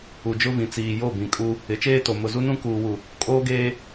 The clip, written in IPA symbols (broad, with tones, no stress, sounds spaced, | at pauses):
u˨ d͡ʒ ʊ˦ v ĩ˨ t͡s iː˨ j o˦˨ b ĩ˨ kʼ u˦ | ɪ˨˦ t͡ʃ eː˦ t o˨ m ʊ˨ z u˦ n ũ˦ k uː˨ w u˨ | kʼ oː˦ ɡ eː˦